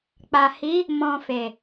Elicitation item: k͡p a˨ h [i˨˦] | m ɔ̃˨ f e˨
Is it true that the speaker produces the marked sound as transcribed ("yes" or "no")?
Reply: yes